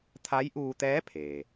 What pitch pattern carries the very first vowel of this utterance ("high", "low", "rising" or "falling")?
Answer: rising